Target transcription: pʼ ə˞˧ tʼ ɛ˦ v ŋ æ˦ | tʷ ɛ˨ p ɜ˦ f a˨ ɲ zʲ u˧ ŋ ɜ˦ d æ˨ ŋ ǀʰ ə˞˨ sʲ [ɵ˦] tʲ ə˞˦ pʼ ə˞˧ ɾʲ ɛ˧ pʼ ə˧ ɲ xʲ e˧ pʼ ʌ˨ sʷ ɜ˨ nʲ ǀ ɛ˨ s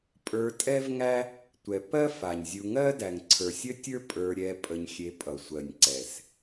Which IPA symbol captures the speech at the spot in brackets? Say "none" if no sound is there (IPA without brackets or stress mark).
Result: ə˦